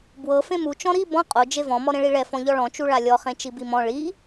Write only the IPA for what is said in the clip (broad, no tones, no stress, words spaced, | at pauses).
bwɤ fẽmu t͡ʃɔ̃ɾi bɔ̃ qʼo d͡ʒevɔ̃ mɔɾẽɭiɭɛ fɔ̃ʎɔɭɔ̃ t͡ʃuɭalʲɔ χẽt͡ʃibimɔ̃ ɭi